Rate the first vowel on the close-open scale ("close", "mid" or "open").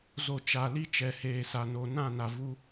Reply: mid